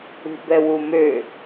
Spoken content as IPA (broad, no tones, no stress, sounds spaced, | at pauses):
ṳ b ɛ w u m ø